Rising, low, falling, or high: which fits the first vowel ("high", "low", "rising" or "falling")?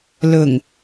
low